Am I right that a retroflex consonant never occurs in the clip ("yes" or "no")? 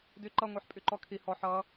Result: yes